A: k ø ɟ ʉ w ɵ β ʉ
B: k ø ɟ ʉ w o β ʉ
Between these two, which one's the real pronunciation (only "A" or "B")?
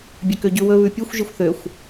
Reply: A